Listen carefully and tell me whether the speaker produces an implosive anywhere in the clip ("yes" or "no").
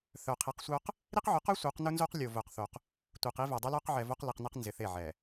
no